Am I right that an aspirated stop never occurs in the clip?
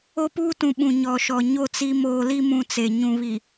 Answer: yes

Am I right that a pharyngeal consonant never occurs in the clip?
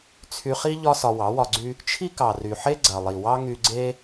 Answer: no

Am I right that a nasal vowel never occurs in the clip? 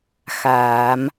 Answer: yes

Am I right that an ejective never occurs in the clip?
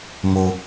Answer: yes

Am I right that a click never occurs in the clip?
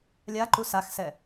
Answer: no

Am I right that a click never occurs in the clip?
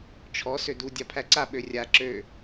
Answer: no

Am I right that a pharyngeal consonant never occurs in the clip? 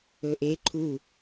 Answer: yes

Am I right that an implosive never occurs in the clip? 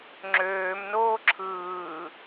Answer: yes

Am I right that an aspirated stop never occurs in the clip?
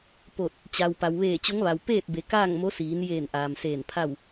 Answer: no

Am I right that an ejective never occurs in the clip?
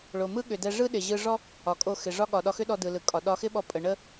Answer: no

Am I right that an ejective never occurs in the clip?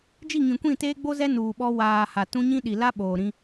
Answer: yes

